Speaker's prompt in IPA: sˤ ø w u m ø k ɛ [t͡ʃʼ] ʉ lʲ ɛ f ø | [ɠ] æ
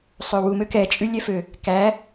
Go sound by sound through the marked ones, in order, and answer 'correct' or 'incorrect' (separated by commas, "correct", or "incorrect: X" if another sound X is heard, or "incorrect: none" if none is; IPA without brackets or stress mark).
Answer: correct, incorrect: k